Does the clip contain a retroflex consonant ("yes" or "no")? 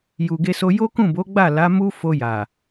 no